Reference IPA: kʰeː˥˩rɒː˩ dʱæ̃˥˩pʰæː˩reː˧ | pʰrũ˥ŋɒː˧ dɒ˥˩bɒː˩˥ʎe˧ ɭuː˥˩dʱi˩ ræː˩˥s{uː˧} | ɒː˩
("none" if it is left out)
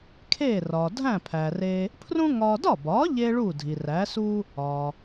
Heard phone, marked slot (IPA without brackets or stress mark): uː˥